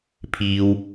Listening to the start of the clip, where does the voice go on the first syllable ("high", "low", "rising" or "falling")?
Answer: high